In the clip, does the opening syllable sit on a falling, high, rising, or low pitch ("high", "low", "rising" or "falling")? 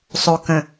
low